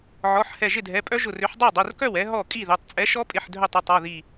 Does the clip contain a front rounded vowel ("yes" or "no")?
yes